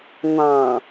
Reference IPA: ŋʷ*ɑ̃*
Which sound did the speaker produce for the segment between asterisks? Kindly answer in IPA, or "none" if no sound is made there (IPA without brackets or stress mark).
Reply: ɑ̃